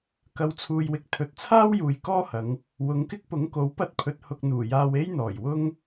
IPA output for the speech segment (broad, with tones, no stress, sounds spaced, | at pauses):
k ɐ˨˧ w t͡sʰ uː˨ j w ɪ˨ k̚ t̪ʰ ɵ˨ t̚ t͡sʰ aː˥ w j uː˨ j k ɔː˥ h ɐ˨˧ ŋ | w ʊ˨˧ ŋ k ɪ˥ k̚ p ʊ˨˥ ŋ k o˨˥ w p ɐ˧ t̚ pʰ ɵ˨ t̚ h ʊ˧ k̚ n̪ uː˨˩ j aː˧ w e˥ j n̪ ɔː˨˩ j w ʊ˥ ŋ